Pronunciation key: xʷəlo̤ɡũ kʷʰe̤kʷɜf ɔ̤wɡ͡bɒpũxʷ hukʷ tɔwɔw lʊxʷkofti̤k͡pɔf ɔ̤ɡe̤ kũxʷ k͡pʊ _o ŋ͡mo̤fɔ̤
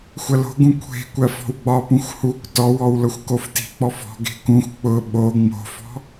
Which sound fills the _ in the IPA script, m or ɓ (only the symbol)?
ɓ